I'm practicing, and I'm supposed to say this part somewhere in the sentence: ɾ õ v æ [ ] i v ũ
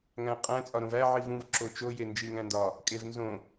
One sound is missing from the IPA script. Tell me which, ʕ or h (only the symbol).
ʕ